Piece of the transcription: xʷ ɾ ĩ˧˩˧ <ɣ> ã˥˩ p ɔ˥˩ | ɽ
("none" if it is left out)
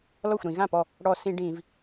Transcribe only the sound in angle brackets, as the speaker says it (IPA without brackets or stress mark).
ɣ